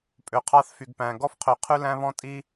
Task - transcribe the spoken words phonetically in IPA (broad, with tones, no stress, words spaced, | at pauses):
pʼø˨qʰɑ˦θfy˨ɡpæ̃˨ ɡɔ˦fqʰø˨ qʰʉ˦læ̃˦βɔ̃˦tʼi˦